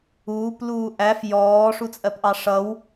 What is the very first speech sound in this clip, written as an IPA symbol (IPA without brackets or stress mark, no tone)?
uː